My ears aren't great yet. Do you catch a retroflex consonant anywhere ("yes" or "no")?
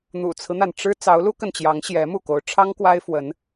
yes